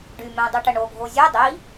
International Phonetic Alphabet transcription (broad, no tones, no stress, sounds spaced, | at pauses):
ɖ y m ɛ̃ dˤ y ʈ ə ɳ o ɡʱ o zʲ œ dˤ i